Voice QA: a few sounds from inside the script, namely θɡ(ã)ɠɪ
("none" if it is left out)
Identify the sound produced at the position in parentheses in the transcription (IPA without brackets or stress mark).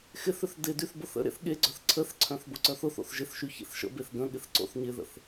ə̃